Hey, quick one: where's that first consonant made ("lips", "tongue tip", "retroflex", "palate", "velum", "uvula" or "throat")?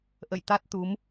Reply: throat